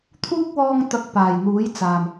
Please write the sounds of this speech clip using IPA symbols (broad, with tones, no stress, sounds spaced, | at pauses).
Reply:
t̪ʰ uː˥ k̚ w ɔː˧ ŋ t̪ ɐ˨˥ k̚ p aː˨˩ j n̪ uː˨˥ j t͡s aː˨˩ m